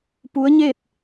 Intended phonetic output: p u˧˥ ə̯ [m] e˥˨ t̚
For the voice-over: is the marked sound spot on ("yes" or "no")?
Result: no